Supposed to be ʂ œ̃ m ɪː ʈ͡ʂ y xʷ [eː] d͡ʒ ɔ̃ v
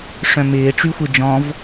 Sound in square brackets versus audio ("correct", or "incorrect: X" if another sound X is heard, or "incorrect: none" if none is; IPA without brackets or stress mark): incorrect: e